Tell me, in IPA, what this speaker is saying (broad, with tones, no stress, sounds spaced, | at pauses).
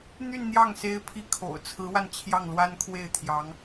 n̪ y˥˧ n n̪ j ɑ˥˩ ŋ s e˥ ɪ̯ pʰ i˥ kʰ o̰˨˩ ʊ̯ t͡sʰ ɹ̩˧˥ w a˧ n t͡ɕʰ j ɑ˥˩ ŋ l w a˥ n kʰ w e˥˩ ɪ̯ t̪ʰ j ɑ˧˥ ŋ